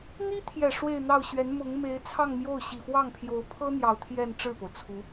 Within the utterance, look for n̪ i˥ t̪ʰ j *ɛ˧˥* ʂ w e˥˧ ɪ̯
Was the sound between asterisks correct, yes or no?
no